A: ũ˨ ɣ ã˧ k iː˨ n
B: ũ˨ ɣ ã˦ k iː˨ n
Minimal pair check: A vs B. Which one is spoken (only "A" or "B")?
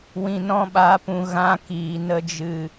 B